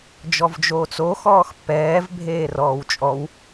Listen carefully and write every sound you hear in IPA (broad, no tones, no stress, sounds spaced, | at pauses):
d͡ʒ ɔ v d͡ʒ oː t͡s o x ɔː x pː ɛː v bʱ eː r ɔː w t͡ʃʼ ɔ w